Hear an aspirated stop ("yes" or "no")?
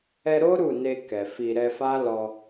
no